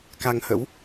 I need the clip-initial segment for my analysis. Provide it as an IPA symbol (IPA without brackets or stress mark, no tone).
k